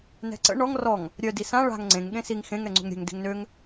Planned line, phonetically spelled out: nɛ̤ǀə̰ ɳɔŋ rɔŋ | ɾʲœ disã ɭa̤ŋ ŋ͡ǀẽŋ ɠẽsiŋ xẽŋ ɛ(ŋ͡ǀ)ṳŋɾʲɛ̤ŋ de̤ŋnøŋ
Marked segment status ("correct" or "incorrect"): correct